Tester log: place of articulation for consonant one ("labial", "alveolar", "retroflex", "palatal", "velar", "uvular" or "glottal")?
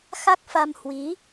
velar